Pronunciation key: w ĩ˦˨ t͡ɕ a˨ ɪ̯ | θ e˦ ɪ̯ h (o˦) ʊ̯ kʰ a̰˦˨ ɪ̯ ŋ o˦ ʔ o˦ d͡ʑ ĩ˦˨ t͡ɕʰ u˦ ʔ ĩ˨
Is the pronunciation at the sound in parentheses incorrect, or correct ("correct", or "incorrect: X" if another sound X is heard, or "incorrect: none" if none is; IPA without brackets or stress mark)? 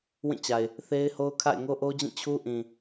correct